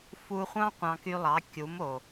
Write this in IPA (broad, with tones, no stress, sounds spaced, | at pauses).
f u˧ χʷ ɑ̃˦ qʷ ɑ̃˧ k y˧ lˠ ɑ˨˦ kʲ u˨˦ m o˨